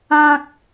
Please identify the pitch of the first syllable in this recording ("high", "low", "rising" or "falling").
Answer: high